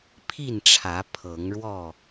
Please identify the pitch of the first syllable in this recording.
falling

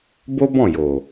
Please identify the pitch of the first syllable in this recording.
high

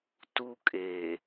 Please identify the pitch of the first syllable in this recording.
high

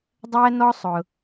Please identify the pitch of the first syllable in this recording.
high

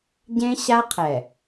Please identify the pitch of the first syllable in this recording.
high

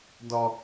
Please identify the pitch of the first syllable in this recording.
low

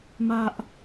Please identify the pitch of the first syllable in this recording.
high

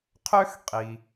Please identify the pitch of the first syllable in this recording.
high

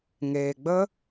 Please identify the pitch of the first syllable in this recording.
low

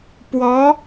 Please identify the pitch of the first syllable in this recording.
rising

